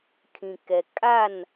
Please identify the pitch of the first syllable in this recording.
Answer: low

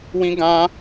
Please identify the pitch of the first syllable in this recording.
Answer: high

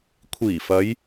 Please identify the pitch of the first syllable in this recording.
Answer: low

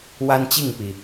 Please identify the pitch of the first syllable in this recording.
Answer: high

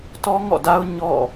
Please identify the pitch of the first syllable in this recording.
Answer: high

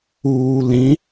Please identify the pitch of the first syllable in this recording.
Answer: low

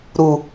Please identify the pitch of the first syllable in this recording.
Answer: low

